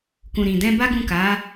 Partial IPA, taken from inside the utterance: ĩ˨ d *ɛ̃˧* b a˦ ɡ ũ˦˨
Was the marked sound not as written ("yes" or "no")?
no